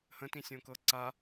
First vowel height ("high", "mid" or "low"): mid